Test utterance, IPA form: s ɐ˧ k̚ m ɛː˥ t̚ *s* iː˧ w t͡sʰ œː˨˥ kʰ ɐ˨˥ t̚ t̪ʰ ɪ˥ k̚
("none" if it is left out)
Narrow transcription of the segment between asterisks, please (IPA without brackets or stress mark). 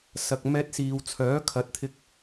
s